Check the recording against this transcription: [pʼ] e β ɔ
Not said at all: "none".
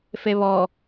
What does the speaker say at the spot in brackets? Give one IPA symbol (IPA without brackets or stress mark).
f